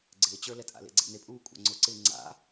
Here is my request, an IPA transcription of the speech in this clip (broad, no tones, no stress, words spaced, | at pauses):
ɡ͡ǀɪːt͡ɕə˞lɛtʼa̰ lḛɡ͡ǀḛnepʼuː kʷʼa̰ŋ͡ǀʊǀɪː ŋ͡ǀa̰